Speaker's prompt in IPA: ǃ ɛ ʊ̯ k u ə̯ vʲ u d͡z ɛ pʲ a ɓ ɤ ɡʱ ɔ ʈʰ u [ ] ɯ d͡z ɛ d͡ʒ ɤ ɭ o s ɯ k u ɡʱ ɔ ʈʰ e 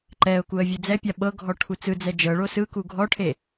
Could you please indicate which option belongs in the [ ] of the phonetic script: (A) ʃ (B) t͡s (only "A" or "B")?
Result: B